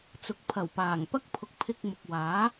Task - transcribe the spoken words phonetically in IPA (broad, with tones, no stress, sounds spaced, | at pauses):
t͡s ʊ˨ k̚ pʰ ɐ˨˩ w p aː˨˩ ŋ p ɐ˥ k̚ pʰ ʊ˨ k̚ pʰ ɪ˧ k̚ m ʊ˨ k̚ w aː˨˥